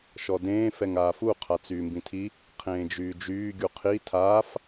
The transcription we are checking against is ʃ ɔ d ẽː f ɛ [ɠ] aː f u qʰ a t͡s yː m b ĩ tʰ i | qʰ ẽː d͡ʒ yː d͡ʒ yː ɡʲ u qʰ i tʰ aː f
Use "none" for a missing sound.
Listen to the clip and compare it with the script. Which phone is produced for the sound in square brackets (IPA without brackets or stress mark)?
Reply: ŋ